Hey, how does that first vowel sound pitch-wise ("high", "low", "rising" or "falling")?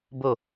falling